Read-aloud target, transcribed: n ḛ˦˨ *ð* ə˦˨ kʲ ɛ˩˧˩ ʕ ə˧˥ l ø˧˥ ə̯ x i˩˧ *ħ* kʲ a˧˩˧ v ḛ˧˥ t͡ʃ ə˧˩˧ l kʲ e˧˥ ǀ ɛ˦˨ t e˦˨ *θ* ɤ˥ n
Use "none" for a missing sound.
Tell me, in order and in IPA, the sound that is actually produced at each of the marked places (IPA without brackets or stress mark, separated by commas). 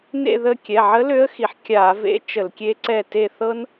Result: ð, ħ, θ